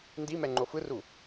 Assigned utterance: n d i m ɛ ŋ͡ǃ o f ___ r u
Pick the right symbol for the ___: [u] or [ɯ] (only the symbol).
ɯ